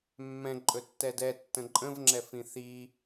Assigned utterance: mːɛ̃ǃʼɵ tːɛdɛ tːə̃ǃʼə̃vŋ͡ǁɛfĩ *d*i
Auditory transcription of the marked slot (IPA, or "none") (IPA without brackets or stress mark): θ